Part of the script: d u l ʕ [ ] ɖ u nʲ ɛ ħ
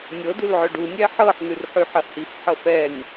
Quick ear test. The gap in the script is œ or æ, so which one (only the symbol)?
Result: œ